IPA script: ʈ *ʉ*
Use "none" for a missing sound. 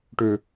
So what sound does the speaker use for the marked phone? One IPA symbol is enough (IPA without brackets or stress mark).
ø